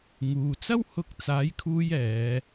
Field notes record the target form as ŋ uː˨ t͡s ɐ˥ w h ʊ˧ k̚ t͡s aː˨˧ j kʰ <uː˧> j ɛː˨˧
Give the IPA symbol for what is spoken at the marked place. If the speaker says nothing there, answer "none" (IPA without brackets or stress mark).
uː˧